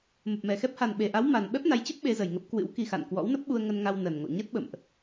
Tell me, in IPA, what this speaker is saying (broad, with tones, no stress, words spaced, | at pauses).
mə˨˩p̚mɛ˨˩xɛ˦˥p̚ ha˨˩nɓe˨˩ʔa˨˦w ma˨˩n ɓɛ˦˥p̚na˨˦jt͡ɕə˦˥p̚ ɓe˨˦zə˨˩jŋə˦˥p̚ kwɨ̰˧˥wki˧xa̰˧˨n kwɔ̰˧˥wnə˦˥p̚ɓu˧ə̯ ŋə˧nŋa˧w nə˨˩nŋo̰˧˨ ɲə˦˥t̚ɓə̰˧˨mʔ